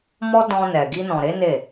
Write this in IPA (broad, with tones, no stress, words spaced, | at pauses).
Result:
mɔ˦ dɔ̃˧nɛ˨ ɡi˧nɔ̃˨ɾe˨˦ ne˦˨